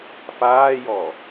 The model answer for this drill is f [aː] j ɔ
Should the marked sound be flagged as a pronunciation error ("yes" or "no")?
no